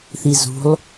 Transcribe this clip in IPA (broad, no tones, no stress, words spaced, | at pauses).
θizṳlˠ